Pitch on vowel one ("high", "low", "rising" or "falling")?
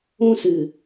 high